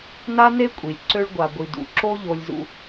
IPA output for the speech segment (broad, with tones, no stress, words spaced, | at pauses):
na˥ne˥kʷʼi˩lʲǀø˦ɭ ɡʷa˨ɡʷi˨ dṵ˩ǁo˦ ʎo˦lʲzṵ˦